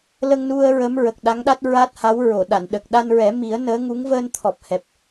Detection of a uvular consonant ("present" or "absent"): absent